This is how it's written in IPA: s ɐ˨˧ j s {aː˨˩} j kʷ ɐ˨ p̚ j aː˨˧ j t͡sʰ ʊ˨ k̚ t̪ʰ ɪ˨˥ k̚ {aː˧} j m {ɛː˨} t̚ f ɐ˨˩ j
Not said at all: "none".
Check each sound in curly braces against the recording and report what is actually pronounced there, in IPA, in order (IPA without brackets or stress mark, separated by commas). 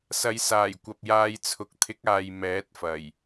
aː˨˩, aː˨, ɛː˨˥